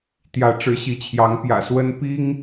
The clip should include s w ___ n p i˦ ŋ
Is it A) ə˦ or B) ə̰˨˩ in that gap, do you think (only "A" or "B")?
A